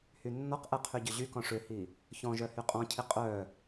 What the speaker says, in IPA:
hynːɔqʔɛ qʰyɟʏʑykɔ̃ ʂʏhi | çɔ̃ ʒœhyqʼɔ̃cʰi qʼœ

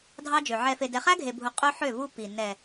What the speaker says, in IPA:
dʱɑ˦d͡ʒø˨ ʕɛ˨fe˨ dɛ˨χæ˦ɡʱe˨bʱu˨ qʼɵ˦ħø˦˨vu˦ pi˨ nɛ˨

